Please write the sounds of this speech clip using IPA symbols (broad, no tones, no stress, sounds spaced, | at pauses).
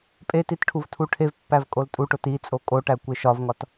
pʼ e t i t ʈʰ u v tʰ u ʈʰ e v pː æ v kʼ o l tʼ u ʈ o t i t͡sʼ o kʼ o ʈ æ kʷ e ʃ ɒ v ŋ ɒ t